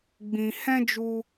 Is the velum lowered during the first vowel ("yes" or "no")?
yes